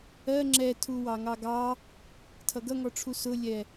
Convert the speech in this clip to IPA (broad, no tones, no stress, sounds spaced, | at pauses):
ɜ ŋ͡ǁ ɛ tʰ u w ɑ ŋ ɑ ɡ ɑ | tʰ ʌ ɡ ʌ ŋ ɔ ʈ͡ʂʰ u s ʊ lʲ ɛ